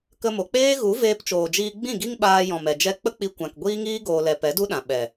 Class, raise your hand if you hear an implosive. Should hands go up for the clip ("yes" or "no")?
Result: yes